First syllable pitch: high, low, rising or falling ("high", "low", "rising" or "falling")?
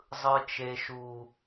high